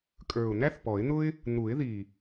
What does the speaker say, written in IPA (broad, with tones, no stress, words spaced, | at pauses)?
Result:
kʼə˞˨˩ʊ̯n̪æ˥θpɔ˨˩˦ɪ̯n̪ʊ˥ɪ̯ | n̪u˨˩˦ɪ̯ði˨˩